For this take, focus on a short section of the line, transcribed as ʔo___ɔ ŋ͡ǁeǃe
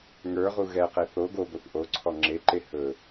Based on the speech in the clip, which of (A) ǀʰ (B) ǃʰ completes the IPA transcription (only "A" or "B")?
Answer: A